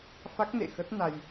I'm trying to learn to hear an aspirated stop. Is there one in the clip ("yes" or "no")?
no